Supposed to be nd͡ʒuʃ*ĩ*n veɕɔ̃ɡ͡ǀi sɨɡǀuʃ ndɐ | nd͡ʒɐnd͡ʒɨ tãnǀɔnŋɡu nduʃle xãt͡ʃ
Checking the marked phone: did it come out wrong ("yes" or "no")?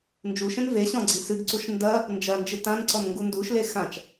yes